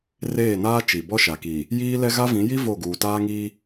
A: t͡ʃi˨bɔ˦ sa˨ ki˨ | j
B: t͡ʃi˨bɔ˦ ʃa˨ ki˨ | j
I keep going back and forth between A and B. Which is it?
B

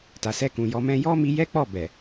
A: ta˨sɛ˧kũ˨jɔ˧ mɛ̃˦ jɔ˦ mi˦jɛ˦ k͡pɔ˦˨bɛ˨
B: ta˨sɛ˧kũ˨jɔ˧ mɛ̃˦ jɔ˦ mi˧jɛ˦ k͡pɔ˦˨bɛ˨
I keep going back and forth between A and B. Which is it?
B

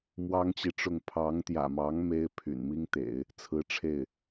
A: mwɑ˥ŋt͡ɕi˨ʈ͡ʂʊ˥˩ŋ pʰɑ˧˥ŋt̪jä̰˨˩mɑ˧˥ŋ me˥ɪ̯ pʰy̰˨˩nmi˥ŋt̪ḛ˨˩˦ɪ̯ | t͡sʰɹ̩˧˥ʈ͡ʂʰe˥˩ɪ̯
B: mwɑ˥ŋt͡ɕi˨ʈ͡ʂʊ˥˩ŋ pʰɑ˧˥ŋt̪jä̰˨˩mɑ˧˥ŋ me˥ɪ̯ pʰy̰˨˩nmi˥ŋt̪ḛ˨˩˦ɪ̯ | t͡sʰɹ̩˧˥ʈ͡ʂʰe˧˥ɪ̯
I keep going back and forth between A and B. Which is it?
A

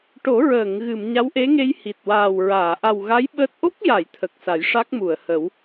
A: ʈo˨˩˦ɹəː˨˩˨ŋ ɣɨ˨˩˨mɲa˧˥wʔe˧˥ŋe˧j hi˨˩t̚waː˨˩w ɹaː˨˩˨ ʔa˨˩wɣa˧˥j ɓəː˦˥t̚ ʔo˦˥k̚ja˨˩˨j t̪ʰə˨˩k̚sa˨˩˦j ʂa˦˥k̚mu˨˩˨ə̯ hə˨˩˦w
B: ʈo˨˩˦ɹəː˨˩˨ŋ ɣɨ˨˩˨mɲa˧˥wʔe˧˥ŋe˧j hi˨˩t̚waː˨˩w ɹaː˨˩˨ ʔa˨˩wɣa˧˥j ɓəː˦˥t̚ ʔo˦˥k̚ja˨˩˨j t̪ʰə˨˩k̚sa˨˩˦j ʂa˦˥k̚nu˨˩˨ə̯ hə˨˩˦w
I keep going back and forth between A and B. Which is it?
A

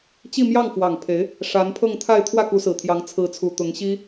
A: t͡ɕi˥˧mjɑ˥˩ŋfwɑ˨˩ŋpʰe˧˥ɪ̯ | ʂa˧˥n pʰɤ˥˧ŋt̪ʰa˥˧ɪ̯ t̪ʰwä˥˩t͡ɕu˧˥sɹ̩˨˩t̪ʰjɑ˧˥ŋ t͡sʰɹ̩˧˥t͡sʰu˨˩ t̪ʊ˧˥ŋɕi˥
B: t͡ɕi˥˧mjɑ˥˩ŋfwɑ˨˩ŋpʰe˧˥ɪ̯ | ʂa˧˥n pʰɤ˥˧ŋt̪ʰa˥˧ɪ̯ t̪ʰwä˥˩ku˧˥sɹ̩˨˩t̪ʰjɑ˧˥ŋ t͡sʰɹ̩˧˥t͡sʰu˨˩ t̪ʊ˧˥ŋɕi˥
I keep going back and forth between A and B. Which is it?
B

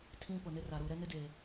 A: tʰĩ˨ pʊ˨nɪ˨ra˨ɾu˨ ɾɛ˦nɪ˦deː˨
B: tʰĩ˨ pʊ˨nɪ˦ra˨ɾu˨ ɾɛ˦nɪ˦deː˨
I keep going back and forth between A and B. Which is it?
B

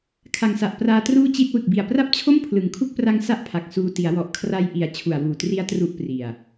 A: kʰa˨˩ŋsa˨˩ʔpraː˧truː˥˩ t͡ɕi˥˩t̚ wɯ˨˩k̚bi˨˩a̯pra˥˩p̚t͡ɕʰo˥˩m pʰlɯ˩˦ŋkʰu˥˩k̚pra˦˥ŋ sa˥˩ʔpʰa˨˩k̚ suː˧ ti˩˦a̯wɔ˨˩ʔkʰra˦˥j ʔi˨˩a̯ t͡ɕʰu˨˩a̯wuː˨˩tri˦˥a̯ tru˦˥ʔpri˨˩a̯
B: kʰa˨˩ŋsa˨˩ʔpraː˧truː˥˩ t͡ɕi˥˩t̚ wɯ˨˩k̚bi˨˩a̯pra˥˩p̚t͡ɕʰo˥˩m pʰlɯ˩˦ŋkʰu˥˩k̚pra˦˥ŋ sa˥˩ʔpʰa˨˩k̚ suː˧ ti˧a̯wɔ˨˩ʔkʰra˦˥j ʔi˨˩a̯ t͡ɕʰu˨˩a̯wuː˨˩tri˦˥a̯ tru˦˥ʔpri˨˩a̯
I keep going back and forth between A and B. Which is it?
A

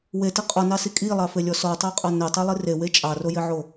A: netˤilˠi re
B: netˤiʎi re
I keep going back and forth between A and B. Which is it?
A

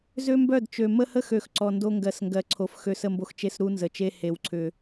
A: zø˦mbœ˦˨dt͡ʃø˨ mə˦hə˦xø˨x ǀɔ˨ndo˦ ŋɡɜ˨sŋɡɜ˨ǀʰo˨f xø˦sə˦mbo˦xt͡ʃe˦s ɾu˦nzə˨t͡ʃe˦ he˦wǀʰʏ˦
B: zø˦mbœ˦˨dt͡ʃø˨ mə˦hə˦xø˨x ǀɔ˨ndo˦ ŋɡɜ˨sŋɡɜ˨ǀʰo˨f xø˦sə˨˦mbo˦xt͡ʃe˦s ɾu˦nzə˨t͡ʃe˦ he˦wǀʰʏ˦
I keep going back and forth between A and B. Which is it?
A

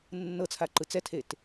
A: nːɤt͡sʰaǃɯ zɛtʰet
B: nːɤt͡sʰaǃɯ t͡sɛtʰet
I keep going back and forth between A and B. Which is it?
B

